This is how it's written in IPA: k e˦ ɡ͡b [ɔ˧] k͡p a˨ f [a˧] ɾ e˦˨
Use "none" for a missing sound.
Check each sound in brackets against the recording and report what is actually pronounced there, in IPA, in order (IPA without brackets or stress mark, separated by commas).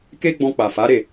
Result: ɔ̃˧, a˨˦